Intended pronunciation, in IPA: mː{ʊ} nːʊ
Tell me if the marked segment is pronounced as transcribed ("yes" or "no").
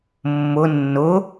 yes